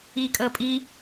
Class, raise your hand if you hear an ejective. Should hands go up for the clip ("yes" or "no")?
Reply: yes